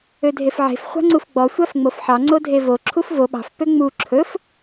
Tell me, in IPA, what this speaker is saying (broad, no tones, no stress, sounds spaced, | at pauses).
ø dʱ e f ʕ e̤ f χʷ ɑ̤ ŋ͡ǀ u f ɡ͡b ɔ sʷ æ f ŋ͡m o f ħ ɑ ŋ͡ǀ o dʱ e v o ǁʰ u f v o ɓ ɑ̤ f p ø ŋ͡m u ǁʰ ɵ f